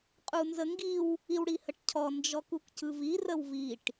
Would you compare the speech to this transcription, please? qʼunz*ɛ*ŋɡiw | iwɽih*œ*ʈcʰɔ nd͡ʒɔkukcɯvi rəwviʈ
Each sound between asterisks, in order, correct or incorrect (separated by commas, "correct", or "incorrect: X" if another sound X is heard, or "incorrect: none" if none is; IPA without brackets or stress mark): incorrect: ə, incorrect: ə